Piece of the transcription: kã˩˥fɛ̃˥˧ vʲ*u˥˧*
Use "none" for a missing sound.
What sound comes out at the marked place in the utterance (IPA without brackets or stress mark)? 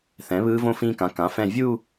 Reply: u˥˧